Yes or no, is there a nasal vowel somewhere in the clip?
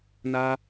no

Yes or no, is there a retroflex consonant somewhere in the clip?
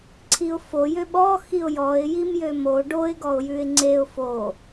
yes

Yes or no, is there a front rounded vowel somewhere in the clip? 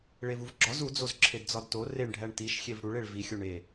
no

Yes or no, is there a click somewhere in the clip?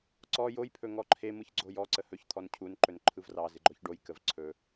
yes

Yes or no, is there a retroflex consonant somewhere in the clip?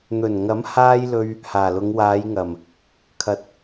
no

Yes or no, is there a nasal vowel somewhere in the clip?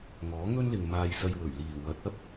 no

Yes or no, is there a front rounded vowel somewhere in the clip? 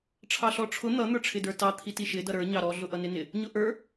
no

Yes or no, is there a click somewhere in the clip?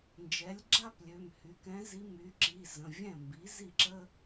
yes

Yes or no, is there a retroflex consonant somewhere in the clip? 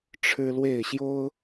yes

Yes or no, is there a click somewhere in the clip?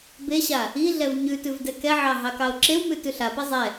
yes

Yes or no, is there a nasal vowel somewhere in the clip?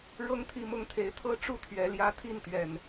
no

